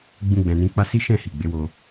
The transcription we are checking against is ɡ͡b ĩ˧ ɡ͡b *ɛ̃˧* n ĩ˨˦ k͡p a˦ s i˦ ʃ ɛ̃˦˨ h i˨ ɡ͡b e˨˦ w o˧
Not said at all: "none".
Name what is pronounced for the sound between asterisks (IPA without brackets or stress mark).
ɛ̃˨